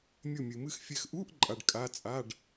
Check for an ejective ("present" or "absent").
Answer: present